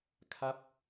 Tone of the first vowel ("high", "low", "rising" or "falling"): falling